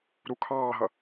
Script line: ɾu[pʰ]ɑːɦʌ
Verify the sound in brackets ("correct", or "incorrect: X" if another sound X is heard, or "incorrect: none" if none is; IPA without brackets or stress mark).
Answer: incorrect: kʰ